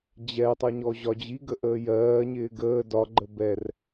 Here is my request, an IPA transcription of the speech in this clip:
d͡ʑ ɛ tˤ ʌ ɲ ɔ ʑ ɒ d͡ʑ i ɡ ə ʔ əː j ɜː ɲ ɪː ɡ əː d ɒ ɡ͡ǃ ə b ɛ r

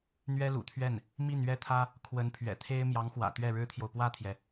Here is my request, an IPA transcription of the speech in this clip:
n̪ ɥ ɛ˥ l ṵ˨˩ t̪ʰ ɥ ɛ˥˩ n | m i˥˩ n ɥ ɛ˥ t̪ʰ ä˥ | kʰ w ə˧˥ n pʰ ɥ ɛ̰˨˩ t̪ʰ e˥ ɪ̯ m j ɑ˧˥ ŋ x w ä̰˨˩ t̪ ɥ ɛ˥˩ ɻ ɻ̩˥ t̪ʰ j o˨ ʊ̯ p w ä˥˩ t̪ʰ j ɛ˩

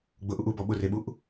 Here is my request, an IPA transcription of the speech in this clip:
ɡ͡b ʊ ʔ u ʔ u b ɔ ɓ ʊ r e ɓ u ʔ

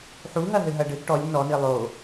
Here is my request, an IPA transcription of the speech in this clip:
ħ u ɦ ɐ ɦ ɘ ɦ ɐ ɖ ɘ ɡ ʈ ɔ lʲ n ɔ n i lˠ o

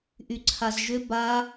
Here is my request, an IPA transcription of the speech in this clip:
ʔ y ǀʰ a z ʒ ʏ b a

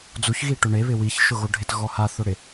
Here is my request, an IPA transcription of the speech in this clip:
d͡z u ç ɣ i ʈ ʊ ɳ e β ɪ w i ç ʃ ʊ ɣ o ɖʱ ɪ t ɣ ɔ h a θ ʊ ɽ ɪ

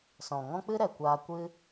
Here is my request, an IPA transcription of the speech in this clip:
s ɔ̃˨ ŋ ɔ̃˦ k͡p ɨ˦ ɾ ɛ˨ kʷ aː˧ kʷ ɨ˦

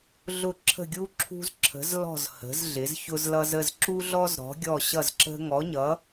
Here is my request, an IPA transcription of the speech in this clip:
ɮ ʊ˧˩ ǁʰ ə̤˧˩ ɡʲ u˧ ǁʰ ṳ˧ z ǁʰ ə̤˩˧ z l ɔ̤˧˩ z h ə̤˩˧ z ɮ ɪ˩˧ z ç ʊ˧ z l ʌ˧ z ə˧˩ z ǁ u˧ ɮ ɔ˧ z ɾ ɔ̤˩˧ ɡʲ ɔ˧˩ ɕ ʌ˧˩ z ǁ ə̤˧ ŋ ɔ˩˧ ɲ ʌ˩˧

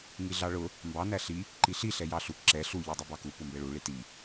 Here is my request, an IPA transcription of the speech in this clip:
ŋ i ɮ ɑ ɭ ʊ | m b ɑ n æ ɬ i | ǃ i ɬ i ɬ ɛ j ɑ ɬ u k ǁ ɛ ɬ u ʎ ɑ dˤ u b ɑ k u p ʊ m b ɛ ɭ u ɭ i t i

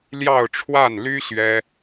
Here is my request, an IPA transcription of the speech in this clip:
l j ɑ˥˧ ʊ̯ ʈ͡ʂʰ w a˥˩ n l y˥ ɕ ɥ ɛ˥

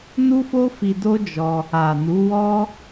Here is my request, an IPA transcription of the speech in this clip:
n u˦ f o˦ f i˧ d o˦ d͡ʒ ɔ˧ | a˨ n u˨˦ w ɔ˦

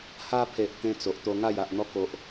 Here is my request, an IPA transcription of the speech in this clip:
h a˧ pʰ e˨ ʔ t̪ ẽ˦ t͡s o˨ ʔ t̪ o˧ ŋ a˥˧ j a˨ ʔ n̪ ɔ˦ k o˦ ʔ

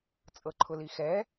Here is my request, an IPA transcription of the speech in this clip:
t͡sʼ ɤ ǃʰ ʊ l i x ɛ

